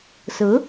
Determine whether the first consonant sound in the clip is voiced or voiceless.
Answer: voiceless